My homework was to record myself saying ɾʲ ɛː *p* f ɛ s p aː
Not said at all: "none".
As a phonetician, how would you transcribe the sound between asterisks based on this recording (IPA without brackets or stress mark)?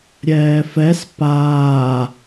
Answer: none